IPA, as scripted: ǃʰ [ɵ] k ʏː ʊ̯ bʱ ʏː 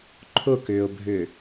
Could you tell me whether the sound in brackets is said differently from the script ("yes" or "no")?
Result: yes